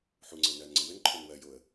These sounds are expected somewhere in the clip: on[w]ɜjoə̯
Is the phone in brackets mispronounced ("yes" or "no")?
no